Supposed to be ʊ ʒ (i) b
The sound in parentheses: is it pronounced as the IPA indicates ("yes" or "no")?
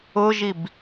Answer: yes